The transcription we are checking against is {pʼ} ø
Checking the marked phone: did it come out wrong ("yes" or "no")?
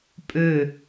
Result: no